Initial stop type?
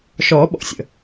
implosive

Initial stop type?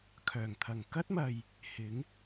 aspirated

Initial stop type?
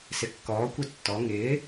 plain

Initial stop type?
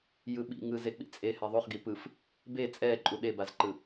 implosive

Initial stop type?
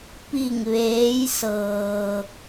plain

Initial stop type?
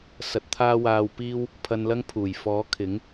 plain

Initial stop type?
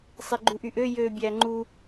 click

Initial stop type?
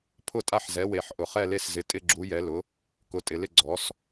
aspirated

